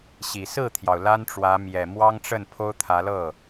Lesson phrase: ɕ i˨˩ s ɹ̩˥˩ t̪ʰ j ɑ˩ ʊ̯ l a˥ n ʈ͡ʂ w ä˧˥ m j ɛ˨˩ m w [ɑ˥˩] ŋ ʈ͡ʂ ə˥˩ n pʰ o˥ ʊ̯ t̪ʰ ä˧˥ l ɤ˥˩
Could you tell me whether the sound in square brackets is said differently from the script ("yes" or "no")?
yes